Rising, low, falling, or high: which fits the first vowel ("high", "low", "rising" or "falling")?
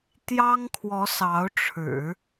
high